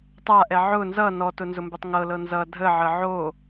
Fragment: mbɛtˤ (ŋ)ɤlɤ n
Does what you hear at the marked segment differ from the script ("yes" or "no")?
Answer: no